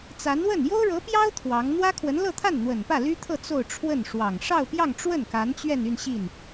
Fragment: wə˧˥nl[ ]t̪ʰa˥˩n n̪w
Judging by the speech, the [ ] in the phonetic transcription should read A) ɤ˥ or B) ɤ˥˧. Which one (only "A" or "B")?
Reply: B